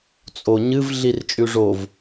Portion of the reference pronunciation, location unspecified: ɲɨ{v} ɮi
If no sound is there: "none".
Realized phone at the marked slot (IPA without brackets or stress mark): v